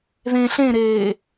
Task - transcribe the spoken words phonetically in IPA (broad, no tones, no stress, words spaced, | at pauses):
ðẽ ɬẽɾeː